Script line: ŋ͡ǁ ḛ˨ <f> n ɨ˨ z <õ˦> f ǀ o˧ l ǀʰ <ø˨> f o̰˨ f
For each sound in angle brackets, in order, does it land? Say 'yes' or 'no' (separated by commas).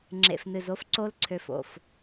yes, no, yes